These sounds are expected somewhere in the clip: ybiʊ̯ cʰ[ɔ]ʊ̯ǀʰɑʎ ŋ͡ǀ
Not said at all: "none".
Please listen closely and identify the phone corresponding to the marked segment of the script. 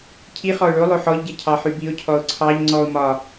ɔ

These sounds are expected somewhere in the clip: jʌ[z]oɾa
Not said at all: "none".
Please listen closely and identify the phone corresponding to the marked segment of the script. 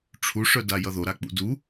ð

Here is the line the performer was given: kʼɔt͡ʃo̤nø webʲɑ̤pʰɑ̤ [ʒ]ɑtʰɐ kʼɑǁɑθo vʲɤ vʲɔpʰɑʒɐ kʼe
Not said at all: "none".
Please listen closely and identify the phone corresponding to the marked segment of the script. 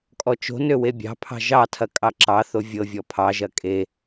ʒ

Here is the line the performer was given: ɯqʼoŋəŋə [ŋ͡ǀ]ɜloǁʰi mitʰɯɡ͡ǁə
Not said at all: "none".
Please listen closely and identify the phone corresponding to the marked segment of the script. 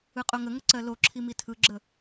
ǀ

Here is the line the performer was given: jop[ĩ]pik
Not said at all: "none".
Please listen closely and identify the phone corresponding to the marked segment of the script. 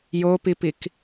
i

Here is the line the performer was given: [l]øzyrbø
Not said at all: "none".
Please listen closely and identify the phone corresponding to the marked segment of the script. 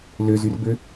l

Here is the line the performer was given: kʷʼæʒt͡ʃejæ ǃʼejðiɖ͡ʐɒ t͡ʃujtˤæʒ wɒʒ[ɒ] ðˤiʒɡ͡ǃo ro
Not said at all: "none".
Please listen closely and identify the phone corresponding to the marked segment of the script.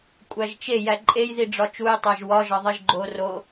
ɒ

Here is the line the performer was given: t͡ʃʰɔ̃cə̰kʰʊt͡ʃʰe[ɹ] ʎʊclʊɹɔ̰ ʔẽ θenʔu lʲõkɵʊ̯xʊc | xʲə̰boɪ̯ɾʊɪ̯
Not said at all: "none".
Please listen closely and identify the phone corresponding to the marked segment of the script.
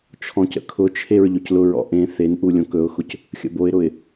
ɹ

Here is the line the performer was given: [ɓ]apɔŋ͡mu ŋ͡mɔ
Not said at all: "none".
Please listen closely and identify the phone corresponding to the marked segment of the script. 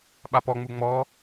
ɓ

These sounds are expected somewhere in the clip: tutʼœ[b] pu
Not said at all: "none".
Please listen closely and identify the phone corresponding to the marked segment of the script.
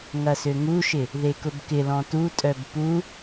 b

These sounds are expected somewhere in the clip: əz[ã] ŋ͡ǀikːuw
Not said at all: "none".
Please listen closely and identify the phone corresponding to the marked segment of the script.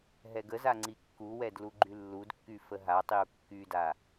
a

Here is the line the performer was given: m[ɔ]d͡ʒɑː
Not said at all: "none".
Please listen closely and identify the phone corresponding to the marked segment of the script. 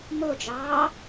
o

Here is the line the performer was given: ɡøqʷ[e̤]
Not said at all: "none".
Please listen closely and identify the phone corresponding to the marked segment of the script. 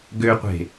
e̤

